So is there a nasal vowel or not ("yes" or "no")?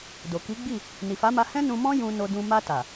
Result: yes